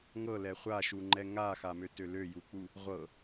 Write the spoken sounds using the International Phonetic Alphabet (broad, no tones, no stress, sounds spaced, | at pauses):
ŋ ɤ l ɛ χʷ a ʃ u ŋ͡ǃ ɛ ŋ a x a m ø t ø l ø j u k͡p u | ʁʷ ɤ